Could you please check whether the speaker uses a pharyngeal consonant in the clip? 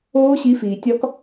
no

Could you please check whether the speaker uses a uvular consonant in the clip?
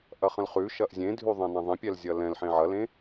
yes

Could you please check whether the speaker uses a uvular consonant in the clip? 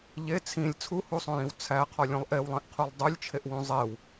yes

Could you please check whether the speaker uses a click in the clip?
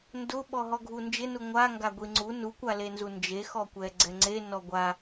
yes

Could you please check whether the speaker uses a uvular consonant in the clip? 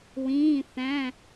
no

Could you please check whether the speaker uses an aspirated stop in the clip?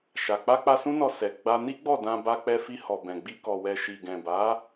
no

